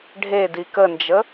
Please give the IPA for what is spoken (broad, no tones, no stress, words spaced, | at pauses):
ɖʱedi kənd͡ʒə